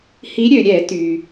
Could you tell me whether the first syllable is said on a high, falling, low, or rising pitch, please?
rising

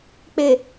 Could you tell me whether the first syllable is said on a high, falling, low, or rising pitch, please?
low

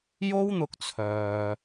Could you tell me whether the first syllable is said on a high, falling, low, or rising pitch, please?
high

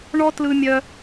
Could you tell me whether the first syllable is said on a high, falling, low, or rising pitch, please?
high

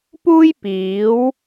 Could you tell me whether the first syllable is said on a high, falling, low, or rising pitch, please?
high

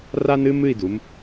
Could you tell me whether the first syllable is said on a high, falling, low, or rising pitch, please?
high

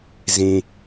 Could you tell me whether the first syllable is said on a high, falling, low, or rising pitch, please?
low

